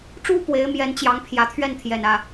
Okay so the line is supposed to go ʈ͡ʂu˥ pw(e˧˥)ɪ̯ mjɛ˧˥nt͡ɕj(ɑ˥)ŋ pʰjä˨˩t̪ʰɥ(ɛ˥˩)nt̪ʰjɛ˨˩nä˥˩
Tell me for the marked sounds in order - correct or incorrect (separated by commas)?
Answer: correct, incorrect, correct